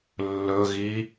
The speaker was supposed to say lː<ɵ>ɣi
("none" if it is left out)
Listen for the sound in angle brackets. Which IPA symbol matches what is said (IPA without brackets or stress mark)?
ɵ